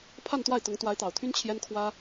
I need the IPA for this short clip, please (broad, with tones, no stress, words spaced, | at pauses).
pʰa˥˧nt̪wa˥˩ɪ̯ t̪ʊ˧˥ŋ t̪wa˧˥ɪ̯t̪ɑ˨˩ʊ̯t̪ʰy˥n t͡ɕʰjɛ˥nkʰwä˥